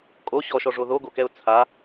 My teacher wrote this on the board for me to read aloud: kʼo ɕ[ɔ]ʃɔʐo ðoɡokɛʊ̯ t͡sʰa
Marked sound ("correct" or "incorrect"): correct